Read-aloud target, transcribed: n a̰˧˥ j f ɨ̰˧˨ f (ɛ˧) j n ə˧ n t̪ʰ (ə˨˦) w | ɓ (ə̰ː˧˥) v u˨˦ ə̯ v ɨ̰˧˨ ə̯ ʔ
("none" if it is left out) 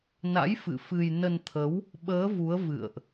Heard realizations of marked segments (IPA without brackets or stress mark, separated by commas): ɨ˧, ə˨˦, əː˨˦